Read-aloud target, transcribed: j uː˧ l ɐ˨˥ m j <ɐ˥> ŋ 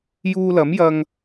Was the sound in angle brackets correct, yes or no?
no